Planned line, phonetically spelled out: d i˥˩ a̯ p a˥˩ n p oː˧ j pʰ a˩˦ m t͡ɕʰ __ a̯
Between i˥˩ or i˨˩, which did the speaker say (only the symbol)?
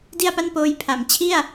i˥˩